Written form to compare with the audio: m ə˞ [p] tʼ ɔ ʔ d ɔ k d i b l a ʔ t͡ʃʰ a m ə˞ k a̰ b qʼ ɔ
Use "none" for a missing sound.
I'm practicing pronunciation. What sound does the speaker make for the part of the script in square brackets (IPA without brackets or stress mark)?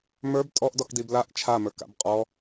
b